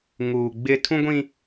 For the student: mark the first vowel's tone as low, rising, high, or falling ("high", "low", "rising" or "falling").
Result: low